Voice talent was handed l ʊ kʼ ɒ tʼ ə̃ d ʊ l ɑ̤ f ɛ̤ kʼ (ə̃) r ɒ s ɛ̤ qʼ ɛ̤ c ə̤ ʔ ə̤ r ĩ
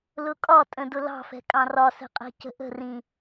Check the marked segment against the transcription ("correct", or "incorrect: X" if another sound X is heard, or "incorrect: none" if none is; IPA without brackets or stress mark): incorrect: ɑ̃